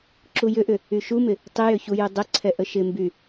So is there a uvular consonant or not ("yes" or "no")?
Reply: no